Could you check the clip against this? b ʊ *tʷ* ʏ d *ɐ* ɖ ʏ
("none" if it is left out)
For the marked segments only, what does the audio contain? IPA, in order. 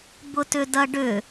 t, ɐ

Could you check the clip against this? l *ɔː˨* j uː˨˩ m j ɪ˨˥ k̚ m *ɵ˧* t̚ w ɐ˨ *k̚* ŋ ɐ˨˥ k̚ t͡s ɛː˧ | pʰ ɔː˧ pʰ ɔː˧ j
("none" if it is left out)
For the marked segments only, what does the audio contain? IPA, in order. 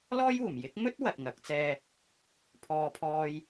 ɔː˥, ɵ˥, t̚

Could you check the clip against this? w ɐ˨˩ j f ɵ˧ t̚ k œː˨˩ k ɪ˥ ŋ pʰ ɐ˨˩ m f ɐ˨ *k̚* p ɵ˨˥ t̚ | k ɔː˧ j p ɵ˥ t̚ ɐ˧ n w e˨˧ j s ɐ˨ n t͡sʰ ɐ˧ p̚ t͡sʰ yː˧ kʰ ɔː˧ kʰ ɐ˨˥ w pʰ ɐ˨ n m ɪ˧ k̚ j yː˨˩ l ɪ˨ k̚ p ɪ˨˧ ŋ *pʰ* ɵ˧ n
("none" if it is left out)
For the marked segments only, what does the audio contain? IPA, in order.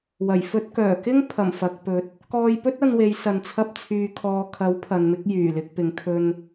k̚, kʰ

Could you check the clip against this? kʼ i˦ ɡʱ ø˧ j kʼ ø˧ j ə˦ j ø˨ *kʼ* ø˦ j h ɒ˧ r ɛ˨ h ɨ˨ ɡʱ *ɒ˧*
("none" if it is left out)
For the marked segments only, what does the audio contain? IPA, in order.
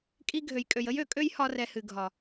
kʼ, ɒ˨

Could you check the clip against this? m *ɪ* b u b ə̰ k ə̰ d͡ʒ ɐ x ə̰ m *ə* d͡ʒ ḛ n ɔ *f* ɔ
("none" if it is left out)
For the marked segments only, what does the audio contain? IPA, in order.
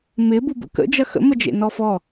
ɪ, ə, f

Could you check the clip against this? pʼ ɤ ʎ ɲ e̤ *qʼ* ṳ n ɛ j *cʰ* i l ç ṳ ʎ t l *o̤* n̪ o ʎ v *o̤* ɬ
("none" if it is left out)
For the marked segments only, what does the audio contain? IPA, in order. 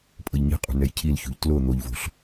qʼ, cʰ, o, o̤

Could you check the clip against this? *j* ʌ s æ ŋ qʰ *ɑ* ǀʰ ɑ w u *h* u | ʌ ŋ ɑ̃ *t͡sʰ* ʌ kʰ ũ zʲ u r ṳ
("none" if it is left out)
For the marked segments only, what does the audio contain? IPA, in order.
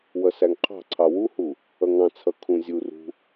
w, ɑ̤, h, t͡sʰ

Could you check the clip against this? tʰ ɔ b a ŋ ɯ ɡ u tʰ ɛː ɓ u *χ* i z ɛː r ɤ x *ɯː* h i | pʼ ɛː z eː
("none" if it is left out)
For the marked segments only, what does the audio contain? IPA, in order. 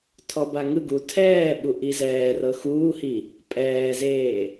ʔ, uː

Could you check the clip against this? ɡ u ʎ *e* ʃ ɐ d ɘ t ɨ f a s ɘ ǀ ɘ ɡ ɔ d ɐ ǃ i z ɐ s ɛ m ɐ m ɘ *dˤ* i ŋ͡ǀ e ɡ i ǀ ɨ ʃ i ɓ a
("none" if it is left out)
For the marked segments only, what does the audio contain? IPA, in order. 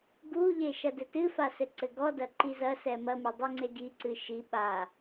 e, dˤ

